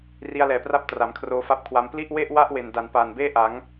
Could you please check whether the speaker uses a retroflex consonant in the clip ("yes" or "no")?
no